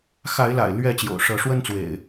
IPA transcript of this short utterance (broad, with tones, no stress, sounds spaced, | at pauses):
x a˨˦ ɪ̯ l a̰˨˩ ɪ̯ l ɥ ɛ˥˨ t͡ɕ j o̰˨˩ ʊ̯ ʂ ɤ˨˦ ʂ w ə˦ n t͡s w ḛ˨˩ ɪ̯